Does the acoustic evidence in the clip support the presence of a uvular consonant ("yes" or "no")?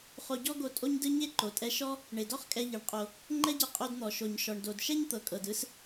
yes